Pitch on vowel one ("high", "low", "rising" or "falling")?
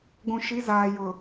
low